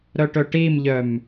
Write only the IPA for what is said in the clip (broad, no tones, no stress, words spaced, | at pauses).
ɾœʈɵʈimʎœm